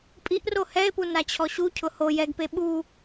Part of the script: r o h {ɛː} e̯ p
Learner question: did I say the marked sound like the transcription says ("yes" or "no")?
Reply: no